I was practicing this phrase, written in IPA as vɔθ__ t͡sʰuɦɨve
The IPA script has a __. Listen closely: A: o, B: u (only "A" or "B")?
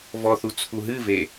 B